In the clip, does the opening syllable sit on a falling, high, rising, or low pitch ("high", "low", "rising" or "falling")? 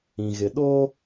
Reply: low